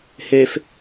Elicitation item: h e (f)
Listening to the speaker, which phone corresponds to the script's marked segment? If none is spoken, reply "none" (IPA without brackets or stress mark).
f